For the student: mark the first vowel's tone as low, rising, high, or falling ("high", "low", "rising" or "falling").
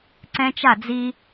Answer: high